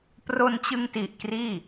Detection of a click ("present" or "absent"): absent